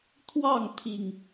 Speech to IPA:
t̪ʰ w ɑ˥˨ ŋ t̪ʰ i˨˩ ŋ

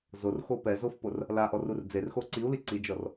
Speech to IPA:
z o r x o p ɛ z o f p o r | l a ʔ ɔ r u r d͡z e r x o ǀ i u̯ l i ǀ i d͡ʒ ɔ r

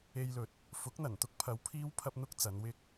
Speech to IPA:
e˧ j l ɵ˨˥ t̚ | f ʊ˨˥ k̚ n̪ ɐ˨˩ n t̪ ʊ˥ k̚ pʰ ɐ˨˧ w pʰ iː˥ w pʰ ɐ˥ p̚ n̪ ʊ˥ k̚ t͡s ɐ˨˧ n w ɪ˧ k̚

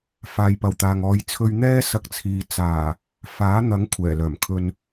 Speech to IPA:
f aː˨˧ j p ɐ˨ w t̪ aː˨ ŋ ɔː˨˧ j t͡sʰ ɵ˧ ɥ n̪ ɛː˥ s ɐ˧ k̚ t͡sʰ iː˨ t͡s aː˨˩ | f aː˨˥ n̪ ɐ˨˥ ŋ kʷʰ ɛː˨˩ l œː˨˩ m kʰ ɵ˨ n

